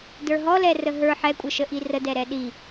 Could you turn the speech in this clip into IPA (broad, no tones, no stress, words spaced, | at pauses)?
də˞ɦɔlɛ rəɦə˞ ħɛkʷʼəʃə ʔirədɛɾɛ ɗi